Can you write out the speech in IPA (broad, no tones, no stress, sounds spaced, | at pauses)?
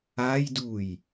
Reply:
a j d u j